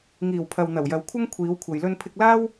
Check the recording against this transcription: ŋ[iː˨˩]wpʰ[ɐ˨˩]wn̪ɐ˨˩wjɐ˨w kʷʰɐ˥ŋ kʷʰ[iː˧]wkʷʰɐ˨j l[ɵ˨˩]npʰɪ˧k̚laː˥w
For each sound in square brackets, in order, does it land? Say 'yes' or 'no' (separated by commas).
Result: yes, no, no, no